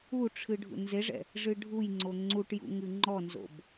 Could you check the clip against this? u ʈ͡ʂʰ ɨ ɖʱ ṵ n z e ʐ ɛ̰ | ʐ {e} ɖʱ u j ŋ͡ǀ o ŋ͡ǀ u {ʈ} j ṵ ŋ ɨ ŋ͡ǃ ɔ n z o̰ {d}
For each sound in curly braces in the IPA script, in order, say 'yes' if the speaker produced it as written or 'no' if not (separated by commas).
no, yes, no